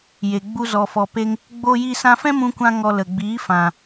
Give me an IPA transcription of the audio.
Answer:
j e˨ ɡ͡b u˧ z ɔ˨ f ɔ˨ p e˧ ŋ | ɡ͡b oː˧ j i˧ s ã˧ f ɛ̃˦ m ũ˦ kʷ ã˦ ŋ ɔ˧ l ə˨ ɡ͡b iː˨˦ f ã˨

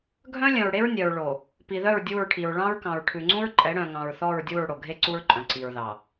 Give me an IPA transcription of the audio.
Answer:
ɡʱ œ̃˦ lʲ œ̃˨ ɹ ɽ e˦ ɹ nʲ œ˨ ɹ ɭ o˨ | p i˨ ð œ˦˨ ɹ dʲ u˦˨ ɹ ʈʰ i˨ ɹ ɭ ɑ̃˦ ɹ k ɑ̃˨ ɹ ʈʰ ʉ˨ ŋ͡ǀ ũ˦ ɹ ǃʼ ɛ˨˦ ɽ œ̃˨ ŋ ɑ̃˨ ɹ θ ɔ˦˨ ɹ dʲ u˦˨ ɹ ɽ o˨ ɡʱ e˦ ǀ u˦ ɹ ǃʼ œ̃˨ ǀ i˨ ɹ ð ɑ˨

